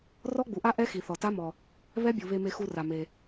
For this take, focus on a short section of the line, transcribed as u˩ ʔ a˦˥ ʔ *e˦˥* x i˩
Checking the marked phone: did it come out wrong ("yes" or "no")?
yes